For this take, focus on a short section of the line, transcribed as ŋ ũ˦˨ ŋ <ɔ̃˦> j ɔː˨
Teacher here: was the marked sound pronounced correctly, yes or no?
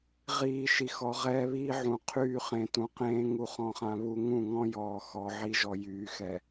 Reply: yes